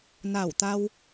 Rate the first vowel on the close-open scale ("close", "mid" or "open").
open